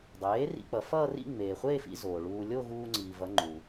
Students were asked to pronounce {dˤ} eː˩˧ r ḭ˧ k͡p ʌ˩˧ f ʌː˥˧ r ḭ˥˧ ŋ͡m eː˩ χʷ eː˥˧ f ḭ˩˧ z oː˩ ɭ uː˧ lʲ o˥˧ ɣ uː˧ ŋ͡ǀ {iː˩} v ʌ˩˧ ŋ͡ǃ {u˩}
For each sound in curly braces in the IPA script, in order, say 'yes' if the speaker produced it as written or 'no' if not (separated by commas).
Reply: yes, yes, yes